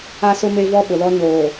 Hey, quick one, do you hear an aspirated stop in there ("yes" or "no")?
no